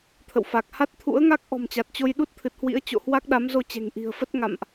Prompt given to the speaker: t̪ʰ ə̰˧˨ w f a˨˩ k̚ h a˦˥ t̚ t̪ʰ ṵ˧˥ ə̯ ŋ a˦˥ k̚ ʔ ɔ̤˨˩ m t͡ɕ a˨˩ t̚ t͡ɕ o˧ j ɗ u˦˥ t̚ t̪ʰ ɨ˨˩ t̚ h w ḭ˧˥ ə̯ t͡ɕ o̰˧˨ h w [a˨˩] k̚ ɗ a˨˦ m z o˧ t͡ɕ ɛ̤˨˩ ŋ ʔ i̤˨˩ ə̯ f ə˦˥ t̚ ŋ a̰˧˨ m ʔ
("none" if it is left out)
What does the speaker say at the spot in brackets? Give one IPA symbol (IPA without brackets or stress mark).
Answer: a˦˥